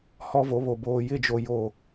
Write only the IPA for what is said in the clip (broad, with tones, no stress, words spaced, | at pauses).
hɔ˦vo˨˦βo˨ boː˨jɪ˦˨d͡ʒo˨ jo˨